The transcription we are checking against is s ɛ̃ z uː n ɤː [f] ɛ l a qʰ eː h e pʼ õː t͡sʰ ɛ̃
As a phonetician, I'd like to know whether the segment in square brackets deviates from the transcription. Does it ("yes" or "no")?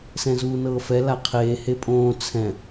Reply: no